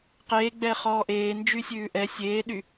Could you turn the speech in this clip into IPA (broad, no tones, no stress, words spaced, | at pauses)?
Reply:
qeːɡ͡bɛː χɔːʔeː nd͡ʒysʲʉːʔɛ sʲeːɗy